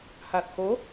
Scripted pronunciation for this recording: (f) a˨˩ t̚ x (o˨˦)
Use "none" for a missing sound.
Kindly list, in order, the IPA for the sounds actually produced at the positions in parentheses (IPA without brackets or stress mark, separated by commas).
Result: h, o˨˦